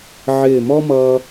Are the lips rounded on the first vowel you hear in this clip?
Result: no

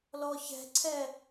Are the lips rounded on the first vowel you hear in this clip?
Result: yes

